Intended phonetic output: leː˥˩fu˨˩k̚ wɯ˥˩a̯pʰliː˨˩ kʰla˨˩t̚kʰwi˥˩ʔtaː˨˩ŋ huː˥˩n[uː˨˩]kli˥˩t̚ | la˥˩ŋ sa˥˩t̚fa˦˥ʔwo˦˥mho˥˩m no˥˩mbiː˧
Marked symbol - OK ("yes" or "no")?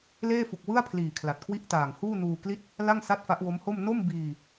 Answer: no